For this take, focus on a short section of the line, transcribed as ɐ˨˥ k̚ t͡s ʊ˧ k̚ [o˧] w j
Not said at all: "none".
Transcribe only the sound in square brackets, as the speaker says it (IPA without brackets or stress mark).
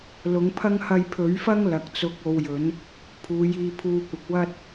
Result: o˧